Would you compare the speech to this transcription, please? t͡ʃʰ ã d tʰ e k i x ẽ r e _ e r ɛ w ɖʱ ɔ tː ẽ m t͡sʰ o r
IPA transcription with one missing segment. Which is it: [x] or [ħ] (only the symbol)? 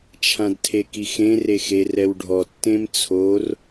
x